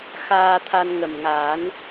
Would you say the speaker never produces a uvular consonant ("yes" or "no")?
yes